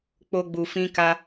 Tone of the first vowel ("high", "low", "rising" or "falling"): high